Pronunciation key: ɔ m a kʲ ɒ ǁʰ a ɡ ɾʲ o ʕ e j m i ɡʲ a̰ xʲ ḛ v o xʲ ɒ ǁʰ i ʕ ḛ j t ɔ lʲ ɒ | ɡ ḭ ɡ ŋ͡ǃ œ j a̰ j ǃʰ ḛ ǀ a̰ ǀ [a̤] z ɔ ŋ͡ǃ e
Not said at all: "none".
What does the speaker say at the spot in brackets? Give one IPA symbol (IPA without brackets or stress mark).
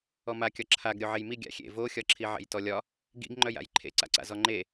a̰